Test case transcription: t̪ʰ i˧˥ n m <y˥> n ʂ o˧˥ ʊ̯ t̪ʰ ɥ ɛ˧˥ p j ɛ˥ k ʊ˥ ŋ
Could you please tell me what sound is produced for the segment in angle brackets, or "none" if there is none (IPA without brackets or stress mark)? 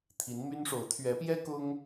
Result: y˥